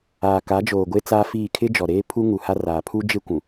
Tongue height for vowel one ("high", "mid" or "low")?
low